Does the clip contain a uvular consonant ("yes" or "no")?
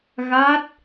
no